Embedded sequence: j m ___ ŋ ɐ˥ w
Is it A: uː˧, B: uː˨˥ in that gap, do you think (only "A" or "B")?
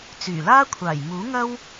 B